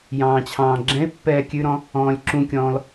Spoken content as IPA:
j ɑ̃ː t͡ɕʰ ɑ̃ː ɡ͡ǁ ɛ̃ ɪ̯ pː ɛː kʲ ʉ ɾ ɔ̃ | ɔ̃ː lʲ ǁ ũ kʲ ɔ̃ː l

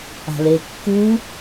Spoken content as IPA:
a̤ l e kː u

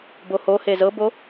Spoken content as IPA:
b o h o h e z ɤ b o

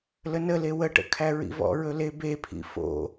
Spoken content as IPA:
l ə n ə l e w ə ʈ ə̰ kʰ æ ɹ ḭ v ɔ̰ ɹ ɵ l e b e pʰ ḭ f o̰

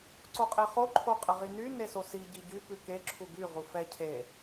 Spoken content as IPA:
ǀ o qʼ e χ o ǃʰ o qʼ ə ʁ i n y n e s o s i ɟ i ɟ y p ʉ k e ǁʰ u ɡ y ʁ u f ɛ cʰ e

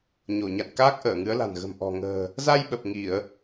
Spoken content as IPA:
ɲ o˧˩ ɲ a̰˧˨ n k aː˦˥ k̚ ʔ əː˧˩ ŋ ɨ˨˦ ə̯ l a̤˨˩ n ɣ ə̤˨˩ m ʔ ɔ̤˨˩ ŋ ə̤ː˨˩ | z a˧ j ɓ ə˨˩ p̚ ŋ i˧˩˨ ə̯

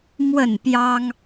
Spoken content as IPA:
m w ə˥˨ n p j ɑ˦ ŋ

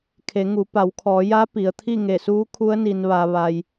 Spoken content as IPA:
kʰ e˩˧ ŋ u˩˧ p a˩˧ w kʰ ɔː˩˧ j a˧˥ p i˩ ə̯ t̪ʰ i˥˨ ŋ e˧˩ s uː˧˥ kʰ u˧˥ ə̯ n i˩ n ʋ aː˩ ʋ a˩ j

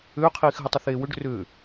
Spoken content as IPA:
ʏː qʰ iː x ɦ ə tˤ ə θ eː w ʏ ɖ r ʏː

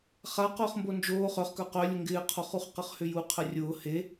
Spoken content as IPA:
χ a q ʊː χ m b o n d͡ʒ oː χ œ χ k œ q œ lʲ ʊ ŋ ɡ ɪː qʰ o χ u χ q ə χ h ʏ j u qʰ ə rʲ ʊː h e

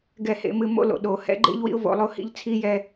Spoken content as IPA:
ɡ ɛ˦˨ h ḛ˨˦ m ɨ˧ m o̰˦ l o̰˨ ɗ o˨ h ɛ̰˦ ɡ͡ǃ ḛ˦ ʎ w ḭ˦ ʊ̯ v o̰˧ lˠ o˧ h ḭ˦ ʎ t͡sʰ i˦ j ɛ˧

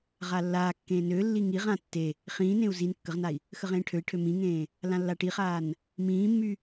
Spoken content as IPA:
ʁ a lː aː kː ẽː n ø lː i ŋ i ʁ ã tː e | χ ĩː n ẽ u̯ z i n kː ə ʁ n a i̯ | x ə ʁ ẽː ʈʰ ø i̯ ʈʰ ø m ĩ ŋ ẽː | l ã lː a ʈ i χ aː n | m ĩː mː y

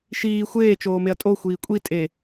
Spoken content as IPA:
ʃ iː xʷ eː t͡ʃ oː m e ɐ̯ tʼ o xʷ iː kʷʼ i tʼ e

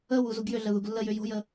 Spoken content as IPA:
ə w u z u ɡ j ʏ ɮ ə ð u ɡ lː ə j ʏ j o̤ j ə

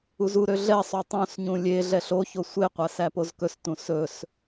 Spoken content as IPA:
u z u ɾ ø ɮ ɛ sˤ o tˤ õ s ɲ ũ lʲ e ɮ ɛ ɬ o ç o sʷ e qʷ æ s æ p o z k ɵ s t ũ s ɵ s

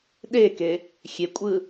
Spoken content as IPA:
ɗ e k e | xʲ e kʷʼ ɯ

